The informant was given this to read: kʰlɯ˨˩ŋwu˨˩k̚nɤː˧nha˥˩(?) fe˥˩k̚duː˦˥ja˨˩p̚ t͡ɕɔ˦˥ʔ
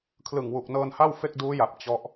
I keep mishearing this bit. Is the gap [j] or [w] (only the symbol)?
w